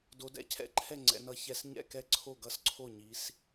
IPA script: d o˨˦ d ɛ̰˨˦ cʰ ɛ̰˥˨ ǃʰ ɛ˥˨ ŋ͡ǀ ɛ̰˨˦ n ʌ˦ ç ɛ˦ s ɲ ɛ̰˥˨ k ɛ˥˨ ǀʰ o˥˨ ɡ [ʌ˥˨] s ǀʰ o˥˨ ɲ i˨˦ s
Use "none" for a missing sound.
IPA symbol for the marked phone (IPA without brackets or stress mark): ʌ˥˨